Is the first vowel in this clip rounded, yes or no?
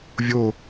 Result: yes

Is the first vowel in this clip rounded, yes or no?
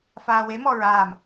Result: no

